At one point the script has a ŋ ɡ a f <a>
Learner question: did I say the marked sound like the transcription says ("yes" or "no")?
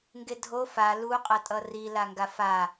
yes